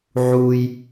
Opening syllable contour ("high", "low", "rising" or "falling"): high